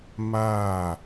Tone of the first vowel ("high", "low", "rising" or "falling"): falling